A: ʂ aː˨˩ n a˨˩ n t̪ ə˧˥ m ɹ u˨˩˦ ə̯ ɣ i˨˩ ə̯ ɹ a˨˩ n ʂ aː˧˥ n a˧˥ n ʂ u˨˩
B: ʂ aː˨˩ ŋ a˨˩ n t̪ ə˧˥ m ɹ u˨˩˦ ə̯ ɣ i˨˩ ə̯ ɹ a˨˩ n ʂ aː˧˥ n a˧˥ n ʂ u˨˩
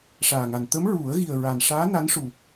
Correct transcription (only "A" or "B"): B